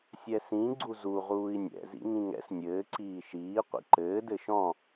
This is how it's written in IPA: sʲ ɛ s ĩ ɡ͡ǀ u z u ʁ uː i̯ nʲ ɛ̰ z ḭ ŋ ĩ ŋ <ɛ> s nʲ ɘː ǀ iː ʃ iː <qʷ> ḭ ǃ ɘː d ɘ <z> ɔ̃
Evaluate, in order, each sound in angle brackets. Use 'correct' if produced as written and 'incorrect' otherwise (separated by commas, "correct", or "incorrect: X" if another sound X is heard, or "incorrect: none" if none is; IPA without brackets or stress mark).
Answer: incorrect: ɛ̰, correct, incorrect: ʃ